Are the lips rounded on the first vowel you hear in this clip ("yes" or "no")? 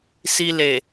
no